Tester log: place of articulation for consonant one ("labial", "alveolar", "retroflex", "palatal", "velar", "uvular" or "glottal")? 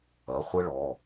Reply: uvular